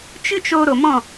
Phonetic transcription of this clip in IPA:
t͡ʃ ɨ˦ t͡ʃ o˧ ɾ o˨ m ɔ̃˦˨

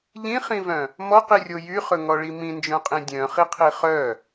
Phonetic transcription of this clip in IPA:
ʎ ĩ χ ĩ v œ̃ | m ɔ q i rʲ o j y χ ɵ ŋ ɔ ɭ i m ĩ n d͡ʒ œ̃ qʼ ĩ dʲ œ̃ χ i qʰ i χ œ

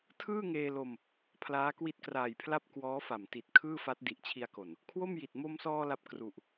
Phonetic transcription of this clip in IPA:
tʰ ɯː˥˩ ŋ eː˧ l o˧ m | pʰ l aː˦˥ k w i˦˥ t̚ k r aː˨˩ j pʰ l a˥˩ p̚ k w ɔː˦˥ f a˨˩ m t i˨˩ t̚ kʰ ɯː˥˩ f a˦˥ t̚ d i˨˩ ʔ t͡ɕʰ i˧ a̯ k o˨˩ n | kʰ w o˥˩ m j i˨˩ t̚ m o˧ m s ɔː˧ l a˥˩ p̚ k r u˨˩ ʔ

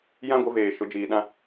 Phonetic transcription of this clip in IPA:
j ã˦ ɡʷ ɪ˨˦ v eː˨ ʃ ʊ˨˦ d͡ʒ iː˨ ɗ ã˦

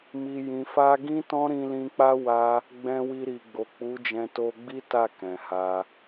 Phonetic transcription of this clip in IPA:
m i˨ j ĩ˨ f a˧ ɡ ĩ˦ t ɔ̃˦ ɾ ĩ˧ l ĩ˧ k͡p a˦ w a˧ | ɡ͡b ɛ̃˧ w i˧ ɾ i˨ ɡ͡b o˨ k͡p u˨˦ d͡ʒ ɛ̃˧ t o˧ ɡ͡b i˦ t a˦˨ k ɛ̃˨ h a˧

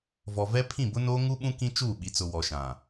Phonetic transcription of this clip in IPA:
v ɔ˨ v ɛ˦ pʰ ĩ˦˨ b ʊ˦ n oː˦ ŋ u˦ ɓ ũ˦ k ĩ˦ t͡ʃ uː˦˨ ɓ i˨ t͡s ʊ˨ w ɔ˨ ʃ ã˨

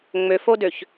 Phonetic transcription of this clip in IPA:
ŋ͡m ø f o d ø ç

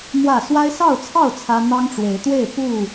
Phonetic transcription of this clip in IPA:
m w ä˥˨ s w a˦ ɪ̯ s ɑ˥˨ ʊ̯ t͡sʰ ɑ˥˨ ʊ̯ t͡sʰ ä˦ n̪ ɑ˦ ŋ ʈ͡ʂ w e˨˦ ɪ̯ t̪ w e˥˨ ɪ̯ p u˥˨

